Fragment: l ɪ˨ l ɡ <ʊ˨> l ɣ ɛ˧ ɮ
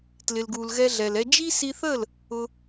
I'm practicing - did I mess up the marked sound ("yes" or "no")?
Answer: yes